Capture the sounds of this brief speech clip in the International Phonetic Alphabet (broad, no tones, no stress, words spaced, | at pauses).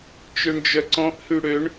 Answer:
t͡ʃøɳd͡ʒœǀɔ̃ʔ hyɽøɳ